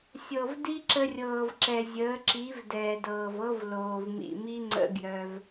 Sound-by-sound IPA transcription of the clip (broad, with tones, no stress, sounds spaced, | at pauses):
sʲ ɤ˨ v d i˦ ǁ ə˧ rʲ ɤː˨ v ǁ ɛ˨ zʲ əː˨˦ ǁ i˨˦ v d ɛː˨ d ɤː˨ v ɤ˦ v l oː˨ v m ḭ˨ m i˦ ŋ͡ǀ ə̰˦ ɡ j œ˧ v